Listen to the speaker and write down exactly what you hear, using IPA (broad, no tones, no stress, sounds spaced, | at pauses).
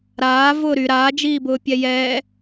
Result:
ɾ aː v ʊː ɾ y ɾ aː d͡ʒ iː b ʊː pʲ ɛ j ɛː